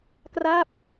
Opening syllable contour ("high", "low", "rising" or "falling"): falling